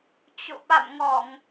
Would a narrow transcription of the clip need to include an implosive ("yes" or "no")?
yes